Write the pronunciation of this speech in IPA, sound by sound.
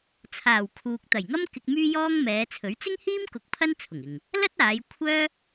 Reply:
t͡sʰ aː˨˩ w kʰ uː˨ k̚ t̪ ɐ˨˩ j ŋ ɐ˥ m k ɪ˧ k̚ m yː˥ j ɔː˥ ŋ m ɛː˨˧ t͡sʰ ɵ˨˥ ɥ t͡s ɪ˥ ŋ h iː˥ m k ʊ˧ k̚ pʰ ɐ˥ n t͡sʰ ʊ˨˩ ŋ ɪ˨ ŋ | l ɐ˥ t̚ aː˨˧ j kʷʰ œː˥

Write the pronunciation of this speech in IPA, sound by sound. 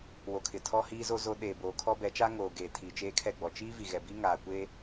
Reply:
w o˨ kʰ ɪ˨ tʰ ɔ˦ h iː˦ z o˦ z o˦ ɗ eː˨ b oː˨ kʰ ɔ˦ b ɛ˨˦ t͡ʃ aː˦ ŋ oː˨ ɡ eː˨ tʰ iː˨ t͡ʃ eː˦ kʰ ɛ˦˨ ɡ͡b ɔ˨ t͡ʃ iː˦ v i˨ ɣ ɛ˨ b i˦ ŋ aː˨ kʷ eː˦

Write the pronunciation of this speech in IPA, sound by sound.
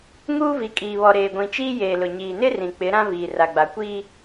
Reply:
ŋ uː˦ v i˨ kʼ iː˨ β ɔ˨ ɾ eː˨ ɡʷ ĩ˨ t͡ʃ iː˦ j eː˨ l ʊ˨ ɲ iː˨ n ɪ˦ r ĩ˨ k͡p ɪ˨˦ ɾ ã˦ v iː˨ r a˨ ɡ͡b a˨ kʷ iː˦

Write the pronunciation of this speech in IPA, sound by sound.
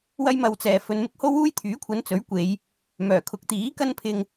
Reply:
w ɐ˥ j m ɐ˧ w t͡s ɛː˨ f ɵ˨ n m ɪ˥ k̚ h o˥ w uː˥ j t̪ʰ yː˨˥ kʷʰ ɐ˨˧ n t͡s ɵ˨˥ ɥ kʷ e˨˧ j | m œː˨˩ kʰ ʊ˨˥ k̚ t̪ iː˨˥ k ɐ˥ n pʰ ɪ˧ ŋ

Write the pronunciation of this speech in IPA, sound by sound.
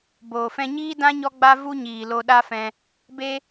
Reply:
b oː˨ f ɛ̃˧ ɲ iː˦ d ã˦ ɲ ɔ˦ ɡ͡b a˦ v u˦ ɲ iː˨ l o˧ ɗ a˦ f ɛ̃˧ | b e˦

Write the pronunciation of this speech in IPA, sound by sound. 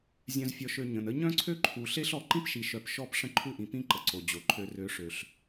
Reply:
zʲ œ̃˨ z fʲ ɔ˨ ʃ ø˨ ɲ ə̃˨ n ə˦ ɲ œ̃˦ ǀʰ ø˦ ǃʰ u˨ ɬ e˦ ɬ ɔ˨ ǃ ĩ˦ p ʃ i˨ ʃ œ˨ p ʃ ɔ˦ p ʂ ə̃˦ ǃʰ u˦ ʔ ĩ˨ p ĩ˦ ǃ ə˨ ǀ o˨ d͡ʑ o˨ ǃʰ ø˨ r ø˨˦ ʂ ø˨ ɬ

